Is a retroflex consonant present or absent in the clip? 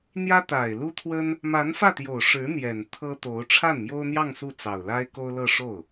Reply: present